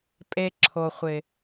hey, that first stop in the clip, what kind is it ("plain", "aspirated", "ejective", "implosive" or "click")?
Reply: ejective